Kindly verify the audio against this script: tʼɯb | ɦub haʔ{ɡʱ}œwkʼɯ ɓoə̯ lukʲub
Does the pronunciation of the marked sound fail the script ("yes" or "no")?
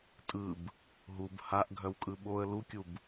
no